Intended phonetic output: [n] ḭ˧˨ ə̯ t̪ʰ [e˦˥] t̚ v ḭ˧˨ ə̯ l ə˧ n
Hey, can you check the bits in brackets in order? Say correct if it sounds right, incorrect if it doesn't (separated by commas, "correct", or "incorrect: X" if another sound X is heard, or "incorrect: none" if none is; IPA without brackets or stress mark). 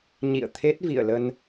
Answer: incorrect: ɲ, correct